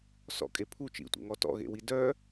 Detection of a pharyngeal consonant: absent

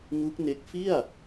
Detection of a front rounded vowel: absent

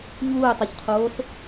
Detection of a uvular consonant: present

